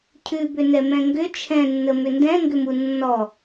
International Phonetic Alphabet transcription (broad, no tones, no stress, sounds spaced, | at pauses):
cʰ ʉ b ʏ n ɛ m ɛ̃ ŋ ɡ ʏ t͡ʃʰ ɛ̃ nː ə m ʏ n d ɛ̃ ŋ ɡ ʏ m u nː ɔ